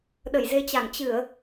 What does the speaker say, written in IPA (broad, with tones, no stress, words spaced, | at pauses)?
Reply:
ɗə˧˩jze˧t͡ɕa˧˩ŋ t͡ɕɨ˧˩˨ə̯